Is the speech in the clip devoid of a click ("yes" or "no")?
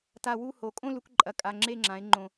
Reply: no